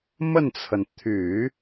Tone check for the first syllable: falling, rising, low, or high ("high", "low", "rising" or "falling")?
falling